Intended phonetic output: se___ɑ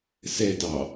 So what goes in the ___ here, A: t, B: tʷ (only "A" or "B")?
A